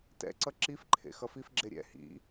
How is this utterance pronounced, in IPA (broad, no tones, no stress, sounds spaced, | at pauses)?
t ɛ̰ ǀ ʌ ǁ i f ǃʰ ḛ x ʌ f i f ɡ͡ǁ e ɾʲ ɛ̰ h ḭ